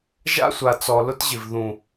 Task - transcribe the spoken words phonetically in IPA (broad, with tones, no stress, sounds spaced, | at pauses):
ʒ a̰˦ sʷ a˨ t͡s ɔ˨ l ʊ˦ t ʑ ɪ˨ v ð ũ˨